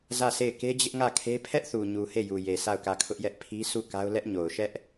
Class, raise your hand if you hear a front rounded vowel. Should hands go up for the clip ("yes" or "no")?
no